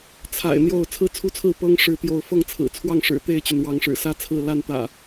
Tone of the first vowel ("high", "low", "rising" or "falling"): low